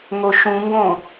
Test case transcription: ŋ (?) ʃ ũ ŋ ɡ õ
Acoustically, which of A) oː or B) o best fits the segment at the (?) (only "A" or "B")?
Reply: B